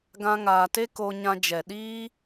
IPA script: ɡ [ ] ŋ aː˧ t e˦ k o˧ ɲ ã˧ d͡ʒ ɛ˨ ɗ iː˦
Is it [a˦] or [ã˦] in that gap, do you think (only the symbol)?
ã˦